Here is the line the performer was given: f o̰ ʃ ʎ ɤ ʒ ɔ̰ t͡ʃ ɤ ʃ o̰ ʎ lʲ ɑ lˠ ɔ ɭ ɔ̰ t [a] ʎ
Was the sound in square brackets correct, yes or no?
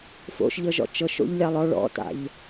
no